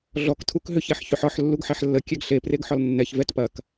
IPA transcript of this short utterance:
ɮ ɔ k tʰ u k ɦ ʏ ç ɛ ħ ç ʏ ħ ɒ ħ lː u ɡ ħ ɛ ħ lː ə kʲ ɛ ɡ ɬ e p r e ɡ ħ ɒ l nː ɛ ç v ɛ t p ɐ k

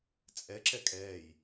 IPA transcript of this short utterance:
t͡sʼ ɛ ǁ ɛ kʼ ɛː j

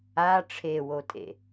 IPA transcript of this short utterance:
a ʈ͡ʂʰ e w o tʼ ḛ

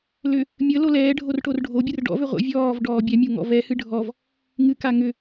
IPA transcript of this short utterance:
l ʏ | mʲ ə l o l ɛː ɖʱ o r ʈ o r ɖʱ o bʲ ɨ r ɖ ɔ̰ v ʏ ʁʷ ə̰ vʲ ɔː v ɖ ɔː bʲ ɛ mʲ o ŋ ɔ̰ v ɛ h ɨ ɖʱ ɔ v | ŋ ɨ k a ŋ ʏ

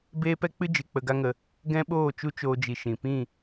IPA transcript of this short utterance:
b eː˦ p ɛ˦ k͡p ɨ˦ d͡ʒ ɨ˨ k͡p ə˧ ɡ a˦ ŋ ə˧ | ɡ ɛ̃˦ ɓ oː˦˨ t͡ʃ u˦ t͡ʃ oː˧ d͡ʒ i˨ ʃ ĩ˨ p ĩ˦˨

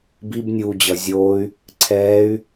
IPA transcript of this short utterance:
b i b nʲ uː d͡ʑ ʌ zʲ oː y̯ | ǀʰ ɛː y̯

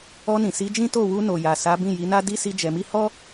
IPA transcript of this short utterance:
ɔ˧ n ĩ˨ s i˨˦ d͡ʒ ĩ˦ t o˦˨ w u˧ n o˨ j a˨ s a˨˦ b ĩ˦˨ j i˨˦ n a˦ d i˦ s i˦ d͡ʒ ɛ˧ m i˦ h ɔ˦

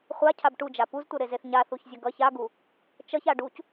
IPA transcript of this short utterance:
χʷ a cʰ a b ʈ u d͡ʒ a p u z tʷ ʌ ɾ e z e θ ɲ a θ u ç zʲ ʌ ɡ ʌ ç a ɡ u | t͡ʃ ʌ ç a ɖ u c

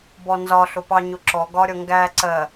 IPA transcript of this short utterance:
b ɔ n z ɒ ɬ ʊ p ɑ ɲ ʊ ǁ ɔ ɡ ɒ ɾʲ ʌ ŋ ɡ æ ǀ ɜ

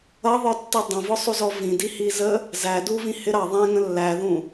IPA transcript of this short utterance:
ʌ ðˤ ə˞ tː i dˤ ə̃ v ʊ sˤ u z ɔ v ĩ d i h i z ə | z æ d u v ĩ h ɪ ɾ ɑ ðˤ ɛ̃ ŋ ə̃ lː æ ð ũ

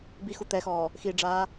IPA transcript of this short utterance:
b i x u t̪ ɛ x ɔː | x i ɖ͡ʐ aː

